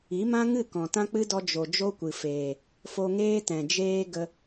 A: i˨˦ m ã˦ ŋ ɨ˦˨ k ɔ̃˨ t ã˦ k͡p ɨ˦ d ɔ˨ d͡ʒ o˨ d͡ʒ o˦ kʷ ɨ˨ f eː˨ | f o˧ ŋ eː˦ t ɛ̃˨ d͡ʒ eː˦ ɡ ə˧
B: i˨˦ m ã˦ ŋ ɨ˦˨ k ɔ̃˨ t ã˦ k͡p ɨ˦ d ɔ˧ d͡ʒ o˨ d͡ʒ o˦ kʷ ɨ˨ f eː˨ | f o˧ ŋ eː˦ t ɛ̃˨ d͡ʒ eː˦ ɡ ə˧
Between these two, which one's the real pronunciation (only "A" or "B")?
B